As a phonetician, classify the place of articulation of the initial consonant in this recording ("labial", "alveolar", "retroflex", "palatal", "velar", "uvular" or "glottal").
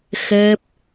velar